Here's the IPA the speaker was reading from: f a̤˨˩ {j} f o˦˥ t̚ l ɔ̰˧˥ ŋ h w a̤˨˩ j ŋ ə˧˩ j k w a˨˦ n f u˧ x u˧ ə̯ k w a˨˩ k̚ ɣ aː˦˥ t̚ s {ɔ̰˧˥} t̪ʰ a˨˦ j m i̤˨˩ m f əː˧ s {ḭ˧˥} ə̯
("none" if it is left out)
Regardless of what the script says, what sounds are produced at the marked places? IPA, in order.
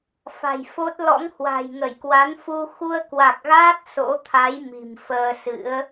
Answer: j, o̰˧˥, ɨ̰˧˥

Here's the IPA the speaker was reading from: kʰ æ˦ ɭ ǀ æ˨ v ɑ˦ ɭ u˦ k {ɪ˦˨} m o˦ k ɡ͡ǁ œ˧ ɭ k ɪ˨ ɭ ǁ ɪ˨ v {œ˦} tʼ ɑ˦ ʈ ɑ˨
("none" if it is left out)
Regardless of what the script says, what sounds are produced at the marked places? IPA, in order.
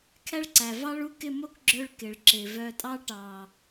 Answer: ɪ˦˨, œ˧

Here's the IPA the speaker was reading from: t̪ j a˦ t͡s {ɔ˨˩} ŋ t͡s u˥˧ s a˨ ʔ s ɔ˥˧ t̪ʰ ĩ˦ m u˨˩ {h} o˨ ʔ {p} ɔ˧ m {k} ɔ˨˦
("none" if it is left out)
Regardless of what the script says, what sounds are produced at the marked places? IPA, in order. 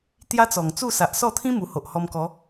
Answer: ɔ˨˩, h, h, k

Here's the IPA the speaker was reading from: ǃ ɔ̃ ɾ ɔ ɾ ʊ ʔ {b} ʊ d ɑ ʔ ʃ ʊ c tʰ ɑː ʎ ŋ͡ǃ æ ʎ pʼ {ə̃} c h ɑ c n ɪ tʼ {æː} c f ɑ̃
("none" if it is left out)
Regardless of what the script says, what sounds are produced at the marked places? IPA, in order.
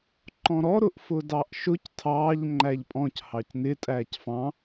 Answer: f, ɔ̃, æː

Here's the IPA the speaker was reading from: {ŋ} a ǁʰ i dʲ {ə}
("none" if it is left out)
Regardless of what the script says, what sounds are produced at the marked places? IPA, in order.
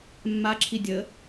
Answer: mː, ə

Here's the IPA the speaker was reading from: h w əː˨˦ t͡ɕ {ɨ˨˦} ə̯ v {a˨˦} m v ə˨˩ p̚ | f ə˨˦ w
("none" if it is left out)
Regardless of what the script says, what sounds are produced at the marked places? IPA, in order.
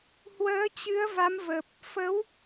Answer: ɨ˨˦, a˨˦

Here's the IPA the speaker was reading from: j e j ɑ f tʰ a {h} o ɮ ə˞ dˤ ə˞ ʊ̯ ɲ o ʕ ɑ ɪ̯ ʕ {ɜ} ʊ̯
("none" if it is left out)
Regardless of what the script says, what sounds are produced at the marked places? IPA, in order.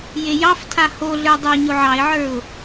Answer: h, ə˞

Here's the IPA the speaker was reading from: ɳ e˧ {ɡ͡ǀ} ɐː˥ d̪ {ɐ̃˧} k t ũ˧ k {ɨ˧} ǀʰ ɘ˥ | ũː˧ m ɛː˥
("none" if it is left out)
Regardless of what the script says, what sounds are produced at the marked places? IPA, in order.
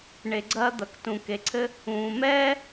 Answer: ɡ͡ǀ, ɐ˧, e˧

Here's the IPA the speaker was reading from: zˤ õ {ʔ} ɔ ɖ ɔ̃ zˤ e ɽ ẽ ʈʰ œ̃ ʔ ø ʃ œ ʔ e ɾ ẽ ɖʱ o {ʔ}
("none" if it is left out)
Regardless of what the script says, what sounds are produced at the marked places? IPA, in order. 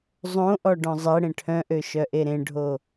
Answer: ʔ, none

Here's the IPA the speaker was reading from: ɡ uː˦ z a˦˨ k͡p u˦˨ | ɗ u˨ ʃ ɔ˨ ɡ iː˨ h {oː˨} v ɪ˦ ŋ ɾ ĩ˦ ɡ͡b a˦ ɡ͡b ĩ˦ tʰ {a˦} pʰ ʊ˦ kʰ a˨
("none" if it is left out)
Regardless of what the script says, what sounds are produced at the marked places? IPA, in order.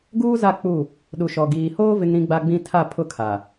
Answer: oː˦, a˦˨

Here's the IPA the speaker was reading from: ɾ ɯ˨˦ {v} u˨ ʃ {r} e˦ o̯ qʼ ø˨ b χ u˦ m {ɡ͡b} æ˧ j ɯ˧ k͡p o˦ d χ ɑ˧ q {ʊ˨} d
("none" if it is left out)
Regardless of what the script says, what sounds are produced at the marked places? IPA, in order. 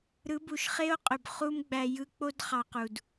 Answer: b, χ, ɡ͡b, u˨

